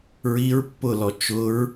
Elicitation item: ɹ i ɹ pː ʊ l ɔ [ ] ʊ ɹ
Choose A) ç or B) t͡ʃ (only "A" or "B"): B